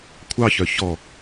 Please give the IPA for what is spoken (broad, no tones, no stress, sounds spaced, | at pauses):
kʷʰ ɑ ç œ ç ɔ